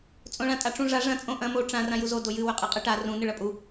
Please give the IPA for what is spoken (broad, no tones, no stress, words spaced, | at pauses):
t͡sʼõɭãtʼaʈ͡ʂũ ʐa ʐɐ̃ t͡sʼõʔɐ̃ mo ʈ͡ʂã rãjuzo dojɨ wɵqʼɨqʼɨʈa rũ nɨɭɐpʼu